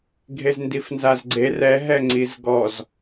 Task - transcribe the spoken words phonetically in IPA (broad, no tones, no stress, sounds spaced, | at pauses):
ɡʱ e z n d i f n z a z ɡ͡ǀ e r ɛ ɦ ɛ ŋ͡ǀ i z ɡ ɔ z